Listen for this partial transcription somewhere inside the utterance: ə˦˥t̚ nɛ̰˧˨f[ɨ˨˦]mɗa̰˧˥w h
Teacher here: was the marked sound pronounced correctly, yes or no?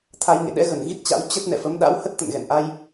no